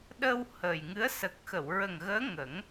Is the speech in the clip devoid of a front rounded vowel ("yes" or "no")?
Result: yes